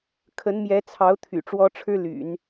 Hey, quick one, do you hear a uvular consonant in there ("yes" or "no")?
no